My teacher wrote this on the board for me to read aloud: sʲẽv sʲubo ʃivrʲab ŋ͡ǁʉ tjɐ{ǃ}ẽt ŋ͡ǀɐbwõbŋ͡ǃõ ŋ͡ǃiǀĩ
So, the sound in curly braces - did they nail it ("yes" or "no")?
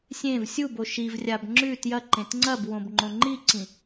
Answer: yes